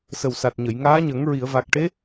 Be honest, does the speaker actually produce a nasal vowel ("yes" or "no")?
no